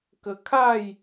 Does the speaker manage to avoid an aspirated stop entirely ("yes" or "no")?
no